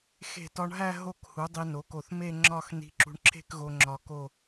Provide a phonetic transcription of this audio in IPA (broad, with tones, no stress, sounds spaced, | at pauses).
x e̤˧˩ t ɒ˧ ɳ ɦ æ˥˧ ɦ o˧˩ k h u˩˧ dˤ i˧ n o˩˧ k o˧˩ θ m e˥˧ ŋ͡ǁ ɒ˥˧ x n i̤˧ ǁ ṳ˧ ɳ ǁʰ e̤˥˧ k ɣ o˧ ŋ͡ǁ ɒ˧ k o˥˧